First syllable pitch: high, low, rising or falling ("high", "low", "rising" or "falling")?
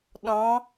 rising